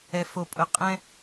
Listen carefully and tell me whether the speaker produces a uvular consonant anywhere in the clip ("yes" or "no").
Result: yes